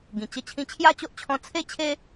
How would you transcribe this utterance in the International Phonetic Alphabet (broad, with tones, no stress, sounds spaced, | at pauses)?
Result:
ɡ ĩ˨˩ t͡ɕ ə˥˧ t͡ɕʰ ĩ˧ t͡ɕʰ j a˥˧ t͡ɕ o˦ ʔ t͡ɕʰ ɔ̃˧ t͡sʰ e˥˧ t͡ɕʰ e˦